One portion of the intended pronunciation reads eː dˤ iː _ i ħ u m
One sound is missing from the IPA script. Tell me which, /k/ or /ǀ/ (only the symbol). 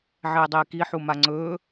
k